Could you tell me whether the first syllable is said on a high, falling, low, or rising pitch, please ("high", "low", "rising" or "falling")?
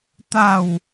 falling